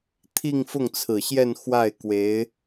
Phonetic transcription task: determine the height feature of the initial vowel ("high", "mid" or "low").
high